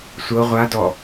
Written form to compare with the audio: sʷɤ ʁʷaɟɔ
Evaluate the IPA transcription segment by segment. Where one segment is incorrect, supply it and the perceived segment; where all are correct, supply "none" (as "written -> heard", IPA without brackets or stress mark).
ɟ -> d